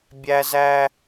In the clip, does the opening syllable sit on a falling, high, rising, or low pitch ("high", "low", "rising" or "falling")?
high